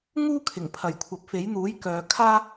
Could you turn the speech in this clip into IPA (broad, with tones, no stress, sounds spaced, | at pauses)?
ŋ uː˥ kʰ ɪ˨˩ ŋ pʰ ɐ˨˩ j kʷʰ ɐ˨ p̚ f e˨˥ j n̪ uː˨˥ j k œː˨ kʰ aː˥